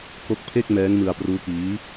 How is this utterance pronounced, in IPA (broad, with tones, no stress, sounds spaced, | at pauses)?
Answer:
k o˦˥ k̚ pʰ e˥˩ k̚ m ɛː˦˥ ŋ m ɯ˧ a̯ p r uː˦˥ k iː˦˥